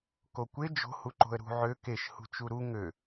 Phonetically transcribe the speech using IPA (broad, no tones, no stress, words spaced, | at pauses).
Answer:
kokʷe d͡ʒo̤ huǃo̤ə̯ɾṳ ʕø keʃhṳ t͡ʃuɾu ŋø